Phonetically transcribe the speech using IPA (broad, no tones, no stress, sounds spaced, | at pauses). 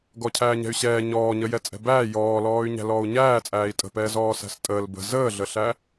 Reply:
ɡ ɔ cʰ æː ɲ ɛ̤ y̯ ɕ ɛː ɲ ɔː ɲ ə j ɛ t͡sʼ ɛ̤ b æː j ɔː l ɔː y̯ ɲ æ̤ l ɔː u̯ ɲ æː t͡sʼ æː i̯ tʼ ə̤ p ɛː z ɔː s æ̤ s tʼ əː l b ə̤ z əː ɮ ə ɬ æ